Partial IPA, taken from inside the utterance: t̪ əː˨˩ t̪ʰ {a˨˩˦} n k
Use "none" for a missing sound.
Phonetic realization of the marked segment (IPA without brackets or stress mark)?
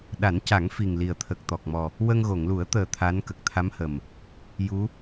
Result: a˧˥